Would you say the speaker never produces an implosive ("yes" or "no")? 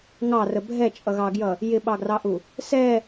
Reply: no